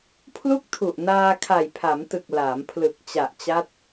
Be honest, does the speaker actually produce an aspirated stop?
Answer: yes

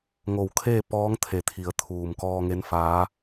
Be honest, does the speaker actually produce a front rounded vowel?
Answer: no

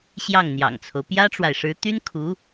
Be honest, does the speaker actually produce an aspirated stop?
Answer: yes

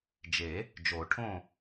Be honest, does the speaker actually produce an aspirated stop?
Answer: yes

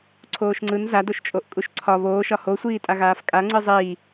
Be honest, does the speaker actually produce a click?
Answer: yes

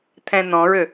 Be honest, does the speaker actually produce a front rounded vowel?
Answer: yes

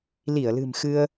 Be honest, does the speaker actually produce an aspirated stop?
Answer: no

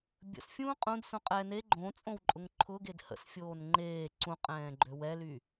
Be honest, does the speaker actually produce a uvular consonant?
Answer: yes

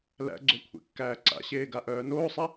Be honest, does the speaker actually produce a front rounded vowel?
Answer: yes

